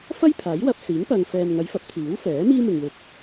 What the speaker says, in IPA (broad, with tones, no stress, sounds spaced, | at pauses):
f ɐ˥ j pʰ aː˨˥ j w ɐ˧ p̚ s iː˨˥ ŋ p ɐ˨ ŋ f ɛː˨ m ŋ ɐ˨˧ j f ɐ˨˥ p̚ t̪ʰ iː˨˥ w f ɛː˨˥ m iː˥ m ɪ˨ ŋ w ɪ˨˥ k̚